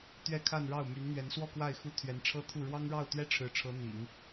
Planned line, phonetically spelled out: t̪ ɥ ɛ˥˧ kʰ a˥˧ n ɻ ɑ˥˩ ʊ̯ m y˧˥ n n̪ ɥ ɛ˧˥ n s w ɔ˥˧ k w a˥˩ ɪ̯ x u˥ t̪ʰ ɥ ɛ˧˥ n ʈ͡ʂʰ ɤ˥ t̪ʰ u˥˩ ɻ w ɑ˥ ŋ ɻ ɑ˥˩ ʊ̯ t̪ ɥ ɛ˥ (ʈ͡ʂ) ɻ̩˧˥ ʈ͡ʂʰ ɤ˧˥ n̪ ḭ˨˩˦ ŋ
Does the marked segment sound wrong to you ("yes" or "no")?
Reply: yes